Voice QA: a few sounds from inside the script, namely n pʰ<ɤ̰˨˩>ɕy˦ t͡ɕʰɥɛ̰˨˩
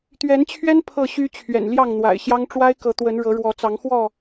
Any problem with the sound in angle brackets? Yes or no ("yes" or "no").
yes